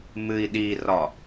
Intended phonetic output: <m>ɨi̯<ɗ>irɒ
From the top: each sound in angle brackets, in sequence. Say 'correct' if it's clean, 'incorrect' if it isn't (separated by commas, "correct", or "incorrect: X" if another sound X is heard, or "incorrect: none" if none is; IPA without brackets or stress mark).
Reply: correct, correct